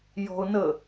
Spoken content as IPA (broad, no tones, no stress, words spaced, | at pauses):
jɔ̤ʊ̯nə